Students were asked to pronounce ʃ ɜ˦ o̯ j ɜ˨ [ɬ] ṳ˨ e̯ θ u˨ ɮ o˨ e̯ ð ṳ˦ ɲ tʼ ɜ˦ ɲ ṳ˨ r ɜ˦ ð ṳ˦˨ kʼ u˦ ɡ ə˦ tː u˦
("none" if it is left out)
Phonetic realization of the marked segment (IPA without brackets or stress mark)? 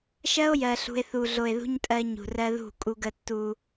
ɬ